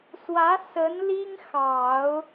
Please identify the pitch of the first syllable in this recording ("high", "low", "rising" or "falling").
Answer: rising